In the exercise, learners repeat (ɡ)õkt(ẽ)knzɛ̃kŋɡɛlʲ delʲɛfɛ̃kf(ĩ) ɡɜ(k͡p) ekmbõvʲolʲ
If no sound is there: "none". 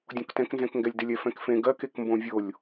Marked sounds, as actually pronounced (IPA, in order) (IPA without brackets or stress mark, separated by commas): dʲ, ɛ̃, ẽ, k